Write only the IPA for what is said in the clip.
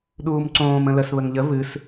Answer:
ɗuːmǀõːm ə̃ləs βəŋʎə vɨs

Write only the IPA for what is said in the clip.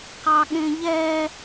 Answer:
qɑɠẽʎɛ

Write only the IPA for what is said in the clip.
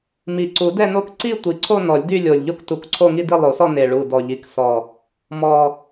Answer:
mi˨˩ ǀu˨˩˦dɛ˥˧no˥˧k ǀi˥˧ tʷi˨˩ǀʰo˥˧ nɔ˨˩˦lʲdy˥˧lʲo˨˩lʲ ʎo˥˧ktu˨˩˦kǀʰo˥˧ŋi˥˧ di˥˧lˠo˨˩˦sɔ˥˧ ne˨˩ ɭu˨˩dɔ˨˩ʎi˨˩ksɔ˨˩ | mɔ˨˩

